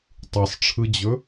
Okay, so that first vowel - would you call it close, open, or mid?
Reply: close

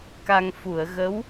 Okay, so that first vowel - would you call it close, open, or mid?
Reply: open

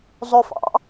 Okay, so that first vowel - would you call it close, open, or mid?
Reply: mid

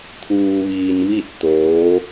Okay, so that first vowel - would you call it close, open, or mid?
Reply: close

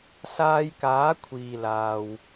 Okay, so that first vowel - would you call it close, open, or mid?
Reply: open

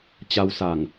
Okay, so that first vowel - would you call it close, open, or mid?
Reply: open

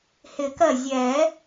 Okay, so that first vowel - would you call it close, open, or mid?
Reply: close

